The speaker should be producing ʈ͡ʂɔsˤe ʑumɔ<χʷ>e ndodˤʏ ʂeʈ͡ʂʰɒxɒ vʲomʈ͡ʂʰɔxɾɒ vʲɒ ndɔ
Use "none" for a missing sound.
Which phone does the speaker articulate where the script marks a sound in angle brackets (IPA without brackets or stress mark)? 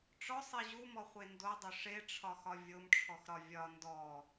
χʷ